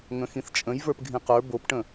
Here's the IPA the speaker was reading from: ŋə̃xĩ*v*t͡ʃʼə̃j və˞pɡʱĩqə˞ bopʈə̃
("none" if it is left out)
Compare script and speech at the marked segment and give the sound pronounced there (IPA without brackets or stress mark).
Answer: θ